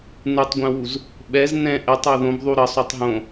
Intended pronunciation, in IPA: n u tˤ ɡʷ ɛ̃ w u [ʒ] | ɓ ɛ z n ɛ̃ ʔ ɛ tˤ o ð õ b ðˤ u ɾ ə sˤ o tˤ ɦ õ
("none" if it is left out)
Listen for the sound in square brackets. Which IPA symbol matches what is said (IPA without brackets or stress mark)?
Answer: z